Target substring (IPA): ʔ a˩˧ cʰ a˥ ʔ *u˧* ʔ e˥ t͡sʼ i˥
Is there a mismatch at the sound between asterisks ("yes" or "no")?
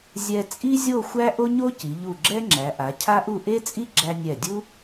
yes